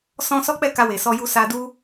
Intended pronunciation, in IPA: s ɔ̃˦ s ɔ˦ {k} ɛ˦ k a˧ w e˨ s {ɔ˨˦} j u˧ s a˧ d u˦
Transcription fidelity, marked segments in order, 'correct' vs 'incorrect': incorrect, incorrect

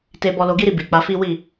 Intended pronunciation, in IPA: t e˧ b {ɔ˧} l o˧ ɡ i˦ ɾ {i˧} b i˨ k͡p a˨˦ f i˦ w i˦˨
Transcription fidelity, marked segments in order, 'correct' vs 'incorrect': correct, correct

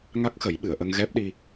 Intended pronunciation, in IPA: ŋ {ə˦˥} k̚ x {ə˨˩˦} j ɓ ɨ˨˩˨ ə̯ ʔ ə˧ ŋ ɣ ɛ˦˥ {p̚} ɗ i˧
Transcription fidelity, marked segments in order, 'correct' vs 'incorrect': incorrect, correct, correct

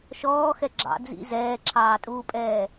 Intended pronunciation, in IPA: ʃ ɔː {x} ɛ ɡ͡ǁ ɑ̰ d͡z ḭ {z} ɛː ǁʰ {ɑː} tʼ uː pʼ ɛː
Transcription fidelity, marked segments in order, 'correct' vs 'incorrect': correct, correct, correct

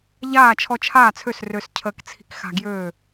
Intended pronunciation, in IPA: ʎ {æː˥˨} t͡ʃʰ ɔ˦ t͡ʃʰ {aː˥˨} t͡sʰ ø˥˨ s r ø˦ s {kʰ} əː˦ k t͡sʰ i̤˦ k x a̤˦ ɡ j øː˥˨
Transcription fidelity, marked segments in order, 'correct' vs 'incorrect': incorrect, correct, incorrect

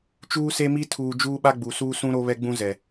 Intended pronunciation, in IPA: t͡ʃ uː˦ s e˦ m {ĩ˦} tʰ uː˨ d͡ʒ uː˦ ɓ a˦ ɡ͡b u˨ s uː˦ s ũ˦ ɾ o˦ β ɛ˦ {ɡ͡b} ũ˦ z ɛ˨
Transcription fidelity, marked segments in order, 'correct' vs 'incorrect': incorrect, correct

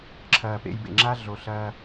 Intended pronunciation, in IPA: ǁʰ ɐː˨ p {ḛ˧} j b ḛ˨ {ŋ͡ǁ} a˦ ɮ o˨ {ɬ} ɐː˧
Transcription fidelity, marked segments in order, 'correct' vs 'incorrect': correct, correct, correct

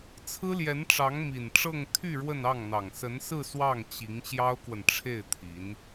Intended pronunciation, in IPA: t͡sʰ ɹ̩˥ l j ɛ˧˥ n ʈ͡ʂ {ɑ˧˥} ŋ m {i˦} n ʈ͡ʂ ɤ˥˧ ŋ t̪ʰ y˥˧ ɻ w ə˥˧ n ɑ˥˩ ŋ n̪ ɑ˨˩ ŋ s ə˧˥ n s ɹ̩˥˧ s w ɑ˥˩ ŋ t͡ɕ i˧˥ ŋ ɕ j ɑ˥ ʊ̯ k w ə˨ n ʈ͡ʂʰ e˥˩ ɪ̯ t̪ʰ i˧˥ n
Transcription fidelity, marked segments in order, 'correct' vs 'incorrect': correct, incorrect

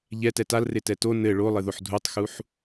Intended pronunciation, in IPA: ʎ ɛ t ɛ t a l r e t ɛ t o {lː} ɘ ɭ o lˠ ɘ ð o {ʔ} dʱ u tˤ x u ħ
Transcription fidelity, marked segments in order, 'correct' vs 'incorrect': incorrect, incorrect

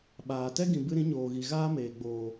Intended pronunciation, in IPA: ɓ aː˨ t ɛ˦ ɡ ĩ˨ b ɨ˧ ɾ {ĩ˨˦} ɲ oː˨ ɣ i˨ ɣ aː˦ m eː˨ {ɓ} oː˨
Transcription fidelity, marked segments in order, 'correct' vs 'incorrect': correct, incorrect

